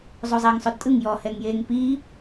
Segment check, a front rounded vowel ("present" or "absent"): absent